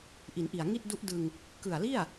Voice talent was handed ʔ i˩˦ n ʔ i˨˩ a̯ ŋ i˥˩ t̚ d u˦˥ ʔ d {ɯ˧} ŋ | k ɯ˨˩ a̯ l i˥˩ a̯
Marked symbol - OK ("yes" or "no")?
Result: yes